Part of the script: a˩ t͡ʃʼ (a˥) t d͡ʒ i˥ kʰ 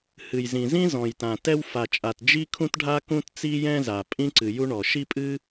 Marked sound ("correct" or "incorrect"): incorrect